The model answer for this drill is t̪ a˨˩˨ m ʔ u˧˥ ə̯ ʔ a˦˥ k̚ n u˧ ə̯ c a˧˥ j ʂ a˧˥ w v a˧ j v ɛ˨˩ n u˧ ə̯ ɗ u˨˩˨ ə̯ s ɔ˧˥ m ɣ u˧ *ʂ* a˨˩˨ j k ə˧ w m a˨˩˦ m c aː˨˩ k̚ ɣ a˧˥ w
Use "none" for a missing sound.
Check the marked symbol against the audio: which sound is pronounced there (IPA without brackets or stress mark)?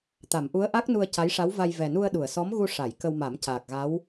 ʂ